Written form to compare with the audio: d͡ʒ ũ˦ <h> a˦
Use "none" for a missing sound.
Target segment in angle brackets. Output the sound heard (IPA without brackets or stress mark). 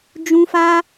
f